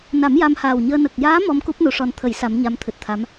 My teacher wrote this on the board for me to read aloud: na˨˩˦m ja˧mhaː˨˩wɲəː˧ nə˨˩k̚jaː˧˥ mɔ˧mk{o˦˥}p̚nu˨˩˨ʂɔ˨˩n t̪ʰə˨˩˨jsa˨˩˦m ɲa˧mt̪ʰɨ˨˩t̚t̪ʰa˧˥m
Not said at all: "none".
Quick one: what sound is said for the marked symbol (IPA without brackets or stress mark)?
u˦˥